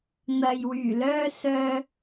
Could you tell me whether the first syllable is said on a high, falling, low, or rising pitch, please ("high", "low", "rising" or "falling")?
low